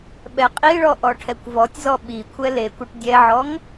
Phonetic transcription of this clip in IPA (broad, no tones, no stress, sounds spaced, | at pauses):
ɓ ɛ qʼ i ɭ ɔ ʔ ɔ ʈʰ ɛ kʷ v ɔ tʲ z ɔ ɓ i kʷʰ ɛ l e kʷ ɛ ʈ dʲ ɛ ʕ ɔ ŋ